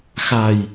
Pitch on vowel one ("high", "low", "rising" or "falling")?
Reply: low